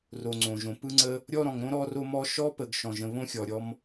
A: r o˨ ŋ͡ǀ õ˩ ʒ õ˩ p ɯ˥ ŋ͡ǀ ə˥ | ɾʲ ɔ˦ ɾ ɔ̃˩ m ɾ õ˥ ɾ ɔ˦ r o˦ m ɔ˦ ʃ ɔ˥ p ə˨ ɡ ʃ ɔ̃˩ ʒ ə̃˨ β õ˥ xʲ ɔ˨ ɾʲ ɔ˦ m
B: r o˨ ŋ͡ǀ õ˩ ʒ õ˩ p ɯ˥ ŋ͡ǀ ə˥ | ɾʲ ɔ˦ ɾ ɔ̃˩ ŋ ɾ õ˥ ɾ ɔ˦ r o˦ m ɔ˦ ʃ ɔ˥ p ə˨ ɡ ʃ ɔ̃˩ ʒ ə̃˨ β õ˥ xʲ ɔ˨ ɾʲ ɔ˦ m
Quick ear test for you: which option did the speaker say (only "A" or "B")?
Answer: B